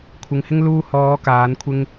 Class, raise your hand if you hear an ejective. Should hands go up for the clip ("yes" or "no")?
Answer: no